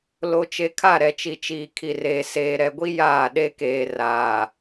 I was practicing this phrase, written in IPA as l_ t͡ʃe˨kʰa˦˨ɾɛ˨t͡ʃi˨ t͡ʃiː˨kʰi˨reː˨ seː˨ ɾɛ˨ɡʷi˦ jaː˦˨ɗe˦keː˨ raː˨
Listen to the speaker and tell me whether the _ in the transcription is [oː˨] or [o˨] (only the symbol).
o˨